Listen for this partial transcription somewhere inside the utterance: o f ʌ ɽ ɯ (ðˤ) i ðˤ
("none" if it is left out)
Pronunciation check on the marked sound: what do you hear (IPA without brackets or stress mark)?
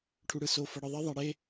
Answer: ðˤ